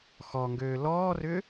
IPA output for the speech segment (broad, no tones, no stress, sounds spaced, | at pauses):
x ɔ ŋ ɡ øː l ɔː r ʏ